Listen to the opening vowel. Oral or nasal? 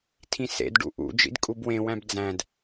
nasal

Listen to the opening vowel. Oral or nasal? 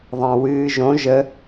nasal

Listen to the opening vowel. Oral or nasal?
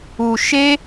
oral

